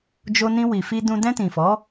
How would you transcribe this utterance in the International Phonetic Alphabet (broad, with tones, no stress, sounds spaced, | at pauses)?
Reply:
d͡ʒ o˧ n ĩ˧ w i˨ f i˧ d ũ˧ d ɛ̃˧ t ĩ˨ f ɔ˨˦